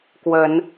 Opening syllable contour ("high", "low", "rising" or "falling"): rising